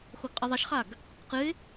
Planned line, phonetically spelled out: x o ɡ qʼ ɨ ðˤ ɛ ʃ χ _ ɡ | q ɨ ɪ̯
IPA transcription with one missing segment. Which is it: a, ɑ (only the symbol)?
a